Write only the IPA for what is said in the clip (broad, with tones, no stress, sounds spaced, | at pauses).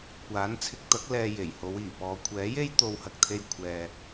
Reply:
kʷ aː˨˥ n t͡sʰ ɪ˧ k̚ t̪ ɐ˨˥ k̚ l ɛː˧ j e˨˩ j h o˨˧ w iː˨˩ p ɔː˨ kʷʰ ɛː˨˥ j e˥ j t̪ o˧ w h ɐ˧ k̚ t̪ʰ e˧ j kʷʰ ɛː˧